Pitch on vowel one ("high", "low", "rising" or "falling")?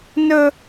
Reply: high